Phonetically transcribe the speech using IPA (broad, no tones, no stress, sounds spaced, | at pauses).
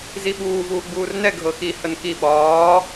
z i ɓ uː v uː ɡ͡b uː r n ɛ ɡʱ ɤ x i h ə n k i ɓ ɒː